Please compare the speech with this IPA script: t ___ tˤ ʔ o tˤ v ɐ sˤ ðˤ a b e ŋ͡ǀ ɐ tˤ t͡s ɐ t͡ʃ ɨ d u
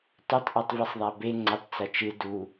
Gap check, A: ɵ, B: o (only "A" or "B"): A